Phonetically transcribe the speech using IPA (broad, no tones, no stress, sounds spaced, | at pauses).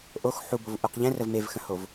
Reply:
ʔ o x ħ u b o v ʔ u q ʎ ɛ̃ r ə v m e v x ə̃ h o v